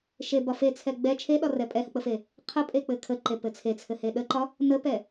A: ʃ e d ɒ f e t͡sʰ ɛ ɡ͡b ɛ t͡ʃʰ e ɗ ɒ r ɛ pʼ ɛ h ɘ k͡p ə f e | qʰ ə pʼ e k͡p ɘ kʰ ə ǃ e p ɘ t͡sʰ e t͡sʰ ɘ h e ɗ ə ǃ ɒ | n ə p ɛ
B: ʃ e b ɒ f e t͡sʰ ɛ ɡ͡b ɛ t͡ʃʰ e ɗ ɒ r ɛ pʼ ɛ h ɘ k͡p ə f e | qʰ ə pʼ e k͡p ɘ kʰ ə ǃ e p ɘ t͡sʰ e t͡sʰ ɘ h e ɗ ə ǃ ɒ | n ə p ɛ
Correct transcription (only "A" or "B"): B